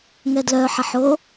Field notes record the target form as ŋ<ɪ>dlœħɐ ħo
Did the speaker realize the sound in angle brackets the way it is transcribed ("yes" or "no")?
no